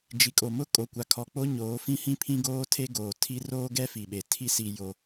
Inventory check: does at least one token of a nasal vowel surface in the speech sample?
yes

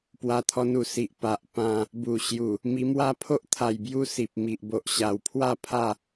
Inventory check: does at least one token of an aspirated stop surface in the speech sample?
yes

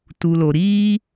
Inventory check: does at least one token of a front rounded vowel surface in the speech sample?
no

